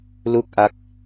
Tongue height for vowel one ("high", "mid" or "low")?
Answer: high